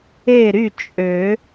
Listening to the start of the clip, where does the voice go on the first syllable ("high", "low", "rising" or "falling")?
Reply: falling